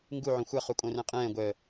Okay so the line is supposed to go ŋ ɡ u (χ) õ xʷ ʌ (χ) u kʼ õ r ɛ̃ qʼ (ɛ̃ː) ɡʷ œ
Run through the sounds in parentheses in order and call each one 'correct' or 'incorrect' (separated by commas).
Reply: incorrect, correct, correct